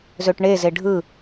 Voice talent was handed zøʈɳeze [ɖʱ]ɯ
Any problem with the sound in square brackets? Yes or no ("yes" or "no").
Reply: no